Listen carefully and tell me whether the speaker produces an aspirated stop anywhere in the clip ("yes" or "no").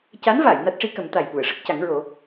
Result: no